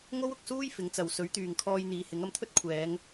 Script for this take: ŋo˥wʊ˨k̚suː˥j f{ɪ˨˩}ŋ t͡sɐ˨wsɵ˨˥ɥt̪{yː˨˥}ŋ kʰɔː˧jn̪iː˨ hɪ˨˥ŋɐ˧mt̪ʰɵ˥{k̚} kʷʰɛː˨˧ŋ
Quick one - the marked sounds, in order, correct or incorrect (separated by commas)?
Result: incorrect, incorrect, incorrect